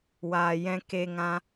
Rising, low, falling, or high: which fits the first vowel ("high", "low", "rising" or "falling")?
low